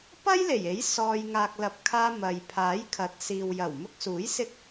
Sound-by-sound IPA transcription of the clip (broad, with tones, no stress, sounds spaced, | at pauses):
p ɐ˥ j l e˨˩ j e˨˥ j s ɔː˧ j ŋ aː˨ k̚ l ɐ˨ p̚ kʰ aː˧ m ɐ˨ j pʰ aː˨˥ j kʰ ɐ˨˥ t̚ s iː˨ w j ɐ˨˩ w m ʊ˧ k̚ s uː˨˥ j s ɪ˥ k̚